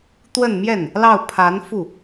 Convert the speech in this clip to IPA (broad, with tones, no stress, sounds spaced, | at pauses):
t̪ w ə˥˧ n m j ɛ˥˩ n | l ɑ˥˩ ʊ̯ pʰ a˧˥ n f u˥˩